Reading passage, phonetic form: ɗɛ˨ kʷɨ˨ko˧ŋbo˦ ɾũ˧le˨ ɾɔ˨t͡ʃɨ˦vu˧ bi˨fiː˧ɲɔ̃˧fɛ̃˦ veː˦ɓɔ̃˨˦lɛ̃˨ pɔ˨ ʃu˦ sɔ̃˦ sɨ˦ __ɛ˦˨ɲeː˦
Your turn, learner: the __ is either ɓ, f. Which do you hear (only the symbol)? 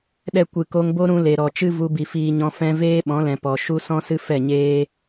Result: f